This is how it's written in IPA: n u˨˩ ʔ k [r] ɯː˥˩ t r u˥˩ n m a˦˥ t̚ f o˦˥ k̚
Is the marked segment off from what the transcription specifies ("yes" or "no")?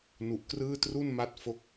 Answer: no